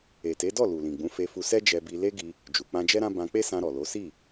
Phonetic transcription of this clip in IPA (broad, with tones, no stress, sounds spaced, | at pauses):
e˨ t e˨˦ d ɔ˦˨ l u˨ l ĩ˨ ɡ͡b ũ˨˦ f e˧ f u˧ s ɛ˦ d͡ʒ ɛ˧ b i˧ l e˦ ɡ i˧ | d͡ʒ u˨ k͡p ã˧ d͡ʒ ɛ˦ ɾ ã˦ b ã˧ k͡p e˦ s ã˧ ɾ ɔ˨ l o˨˦ s i˦˨